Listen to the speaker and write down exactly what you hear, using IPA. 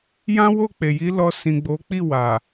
j ã˦ w o˦˨ k͡p e˨ j i˨˦ l ɔ˧ s ĩ˨ ɡ͡b o˨˦ k͡p i˦˨ w a˨

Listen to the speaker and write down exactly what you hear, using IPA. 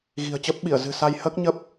ɣ i̤˨˩ ə̯ t͡ɕ əː˦˥ p̚ ɓ i˧˩ ə̯ z ɨ̤˨˩ s a˧ j h əː˦˥ k̚ ɲ ə˦˥ p̚

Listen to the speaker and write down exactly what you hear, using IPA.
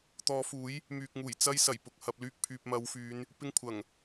t̪ ɔː˨˧ f uː˨˥ j | m yː˨ k̚ ŋ uː˨˩ j t͡s ɐ˧ j s ɐ˨˩ j p ʊ˨ k̚ h ɐ˨ p̚ l yː˧ k̚ pʰ yː˨ p̚ m ɐ˨˧ w f yː˨˧ n | p ɪ˥ ŋ kʷʰ ɐ˨˩ ŋ

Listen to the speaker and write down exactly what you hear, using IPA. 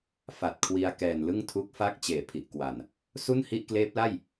f a˨˩ t̚ kʰ w i˧ a̯ k ɛː˨˩ n l ɯ˥˩ ŋ tʰ u˦˥ k̚ f a˦˥ k̚ t͡ɕ eː˨˩ pʰ i˨˩ ʔ k w a˨˩ n | s u˥˩ n h i˥˩ ʔ k l eː˦˥ p̚ l a˥˩ j

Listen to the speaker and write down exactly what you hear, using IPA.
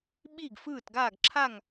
ɓ i˥˨ ɡ f ɯː˥˨ t ɡ aː˥˨ ɡ ǁʰ a˥˨ ŋ

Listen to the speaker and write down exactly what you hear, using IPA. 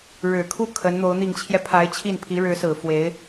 ɻ ɻ̩˨˩ kʰ u˥˩ kʰ ə˧˥ n n̪ o˧˥ ʊ̯ n̪ i˨˩ ŋ t͡ɕʰ j ɛ˦ pʰ a˧˥ ɪ̯ t͡ɕʰ i˥˩ n pʰ i˧˥ ɻ ɻ̩˧˥ s ɹ̩˨˩ f w e˧˥ ɪ̯

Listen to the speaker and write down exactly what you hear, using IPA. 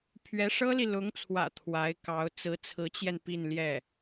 pʰ ɥ ɛ˧˥ ʂ ɤ˥ l i˨ l ʊ˧˥ ŋ t͡sʰ w ä̰˨˩ t̪ʰ w a˧˥ ɪ̯ k ɑ˧˥ ʊ̯ t͡s ɹ̩˧˥ t͡sʰ ɹ̩˧˥ t͡ɕ j ɛ˧ n p i˥˧ n l j ɛ˥˩

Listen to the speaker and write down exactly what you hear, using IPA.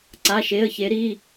ǀ a˩˧˩ ʃ e˩˧˩ ə̯ ç e˩˧ ɾ i˩˧˩

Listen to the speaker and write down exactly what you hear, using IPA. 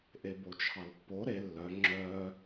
ʔ e b o t͡ʃʰ ɑ l pː o ɾ e lː œ ŋ͡ǁ œː

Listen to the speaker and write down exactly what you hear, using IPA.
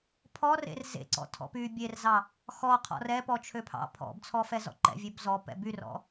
pʰ ɔ r ḛ r z ḛ ǀ ɔ̰ tʰ ɔ̰ p y bʲ e r z ɑ | x ɔ qʰ ɔ̰ r ɛ p ɔ t͡ʃʰ ø pʰ ɑ̰ pʰ ɔ̰ b t͡sʰ ɔ f ɛ z ɔ̰ ǃ ɛ̰ vʲ ø b z ɔ p ɛ̰ b y r ɔ̰

